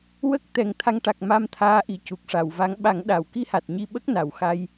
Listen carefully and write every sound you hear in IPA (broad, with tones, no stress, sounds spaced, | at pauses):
w ə˦˥ k̚ t̪ ɛ˨˩˦ ŋ t̪ʰ a˧ ŋ ʈ a˨˩ k̚ m a˧ m t̪ʰ aː˧˥ ʔ i˨˩ c u˨˩ k̚ ʂ a˨˩˨ w v a˧˥ ŋ ɓ a˨˩˦ ŋ ɗ a˨˩˨ w k i˧ h a˨˩ t̚ ɲ i˧ ɓ ə˦˥ k̚ n a˨˩ w x a˧ j